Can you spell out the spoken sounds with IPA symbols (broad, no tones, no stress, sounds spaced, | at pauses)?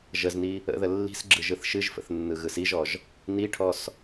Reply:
ʒ ə z n i | ə̰ ð ə lː i̤ s ɡ͡ǁ ɯ ʒ ɯ θ ʃ ɨ ʒ f ə̰ θ nː ɯ ɣ ɯ s i ʒ ɔ ʒ | n i ʈʰ ɔ s